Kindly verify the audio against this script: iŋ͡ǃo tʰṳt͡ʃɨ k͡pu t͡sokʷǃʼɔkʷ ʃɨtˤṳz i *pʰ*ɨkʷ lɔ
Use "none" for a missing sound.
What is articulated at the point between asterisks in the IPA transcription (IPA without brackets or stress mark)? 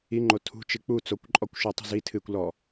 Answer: tʰ